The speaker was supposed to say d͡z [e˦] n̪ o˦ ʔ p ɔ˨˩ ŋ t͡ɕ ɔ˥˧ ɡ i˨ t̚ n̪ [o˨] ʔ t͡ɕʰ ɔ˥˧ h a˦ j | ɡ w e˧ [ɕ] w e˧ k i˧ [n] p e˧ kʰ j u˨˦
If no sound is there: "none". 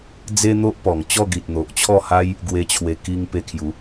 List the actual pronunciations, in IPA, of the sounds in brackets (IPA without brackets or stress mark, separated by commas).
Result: e˦, o˨, t͡ɕʰ, ŋ